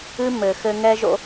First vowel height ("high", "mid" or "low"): high